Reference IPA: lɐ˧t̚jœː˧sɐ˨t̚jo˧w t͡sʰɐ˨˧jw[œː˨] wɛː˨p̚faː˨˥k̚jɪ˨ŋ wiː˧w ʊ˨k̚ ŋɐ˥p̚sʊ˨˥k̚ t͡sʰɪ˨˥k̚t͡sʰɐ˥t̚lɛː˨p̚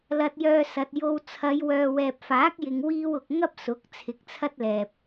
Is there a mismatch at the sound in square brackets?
no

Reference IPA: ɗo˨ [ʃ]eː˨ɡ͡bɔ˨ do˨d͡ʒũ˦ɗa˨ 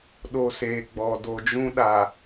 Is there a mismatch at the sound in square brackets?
yes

